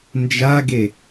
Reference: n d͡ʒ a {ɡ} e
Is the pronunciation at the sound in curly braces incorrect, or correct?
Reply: correct